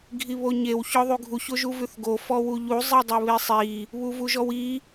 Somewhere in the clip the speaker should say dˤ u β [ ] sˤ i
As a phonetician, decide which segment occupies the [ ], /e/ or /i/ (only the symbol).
e